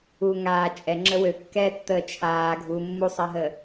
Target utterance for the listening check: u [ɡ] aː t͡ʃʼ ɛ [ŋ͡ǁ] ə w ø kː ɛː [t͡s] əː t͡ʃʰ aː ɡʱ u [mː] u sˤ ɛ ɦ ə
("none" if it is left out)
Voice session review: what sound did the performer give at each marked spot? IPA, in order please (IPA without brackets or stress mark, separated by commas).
ŋ, ŋ͡ǁ, tː, mː